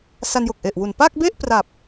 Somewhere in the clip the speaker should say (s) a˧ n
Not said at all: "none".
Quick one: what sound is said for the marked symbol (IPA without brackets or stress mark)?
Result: s